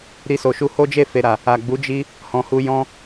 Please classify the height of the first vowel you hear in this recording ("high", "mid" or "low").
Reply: high